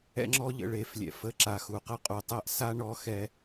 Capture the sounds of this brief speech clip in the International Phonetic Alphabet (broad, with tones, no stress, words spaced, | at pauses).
ɛ̰˧ŋ͡ǁɔ˧ʎə̰˨ ɭe˨flʲɛ̰˨f ə˧ ǁa˨xu˨qə˦qʼu˨ tˤɛ˦ʔsa˦ ɳɔ˧xɛ˧